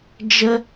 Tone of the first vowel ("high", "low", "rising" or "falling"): high